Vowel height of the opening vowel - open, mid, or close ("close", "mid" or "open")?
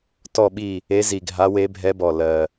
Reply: mid